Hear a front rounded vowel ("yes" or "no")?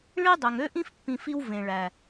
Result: yes